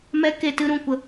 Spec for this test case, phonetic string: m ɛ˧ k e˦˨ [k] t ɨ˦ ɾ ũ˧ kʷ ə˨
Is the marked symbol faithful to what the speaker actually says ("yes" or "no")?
no